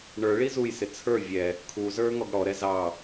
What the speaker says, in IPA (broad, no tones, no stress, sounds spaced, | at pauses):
ɳ ə˞ ɭ i z u j s ɪ t͡sʰ ə˞ vʲ ɛ | kʰ u z ə˞ ŋ ɔ ɡ ɽ ɔ ɾ ɛ z ɑ